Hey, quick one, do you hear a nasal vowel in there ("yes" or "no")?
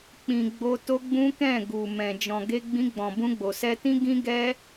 yes